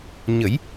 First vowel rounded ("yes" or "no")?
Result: no